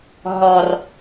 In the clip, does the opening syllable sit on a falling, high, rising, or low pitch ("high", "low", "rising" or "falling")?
low